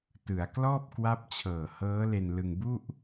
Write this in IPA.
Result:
tɯ˩˦a̯ klɔː˥˩p̚ kwa˦˥p̚t͡ɕʰɤː˨˩hɤː˦˥ le˧nlɯ˧ŋ bu˥˩ʔ

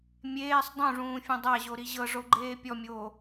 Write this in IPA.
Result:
mʲeːsˤ dˤũʐũːfʲõ dˤaʑoɾi ʑɤʐoɡ͡ǃeː pʲɔmʲoː

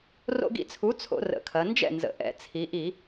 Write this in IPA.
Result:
ro̰˦ɡḭ˦t͡sʰu˨˥ t͡sʰo̰˦rə̰˨˩kʰɐ˩˧ nd͡ʒɛ̰˥˩nzə̰˩˧ ʔɛ̰˨˩t͡sʰi˩˧ʔi˧˩˧

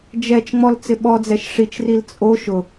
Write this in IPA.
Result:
d͡ʒɛt͡ʃŋ͡mɔl t͡sɪɓɔd͡zɛʃ ʂit͡ʃril t͡sʼo ʃʊ

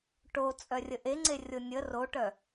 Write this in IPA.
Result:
ʈot͡sʼœrʲə ʔeŋ͡ǀerʲo nʲə roʈœ

